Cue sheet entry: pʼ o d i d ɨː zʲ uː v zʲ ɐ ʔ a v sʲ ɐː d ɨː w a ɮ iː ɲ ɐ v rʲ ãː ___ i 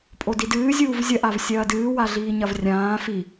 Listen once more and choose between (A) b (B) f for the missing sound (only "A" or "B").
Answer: B